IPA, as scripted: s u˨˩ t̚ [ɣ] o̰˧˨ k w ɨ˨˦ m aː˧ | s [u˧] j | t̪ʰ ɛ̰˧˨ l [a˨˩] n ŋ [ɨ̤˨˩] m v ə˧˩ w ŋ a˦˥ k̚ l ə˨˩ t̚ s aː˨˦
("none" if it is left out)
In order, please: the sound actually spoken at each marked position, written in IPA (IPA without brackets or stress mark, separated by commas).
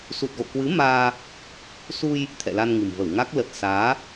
ɣ, u˧, a˧, ɨ̤˨˩